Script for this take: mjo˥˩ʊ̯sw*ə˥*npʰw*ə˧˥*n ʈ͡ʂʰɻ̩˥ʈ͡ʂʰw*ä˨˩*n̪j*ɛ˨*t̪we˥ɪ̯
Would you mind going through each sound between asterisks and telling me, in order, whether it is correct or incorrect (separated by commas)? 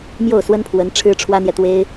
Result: correct, correct, incorrect, correct